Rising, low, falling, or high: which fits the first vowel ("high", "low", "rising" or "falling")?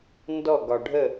falling